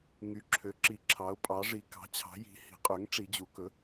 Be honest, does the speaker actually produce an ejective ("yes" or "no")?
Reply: yes